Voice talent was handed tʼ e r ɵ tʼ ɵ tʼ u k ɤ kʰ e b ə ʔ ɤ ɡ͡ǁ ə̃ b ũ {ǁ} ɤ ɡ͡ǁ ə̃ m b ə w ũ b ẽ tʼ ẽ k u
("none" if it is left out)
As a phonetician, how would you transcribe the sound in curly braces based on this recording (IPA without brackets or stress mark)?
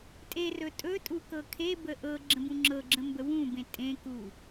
ŋ͡ǁ